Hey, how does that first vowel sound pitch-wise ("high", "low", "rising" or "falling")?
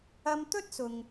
high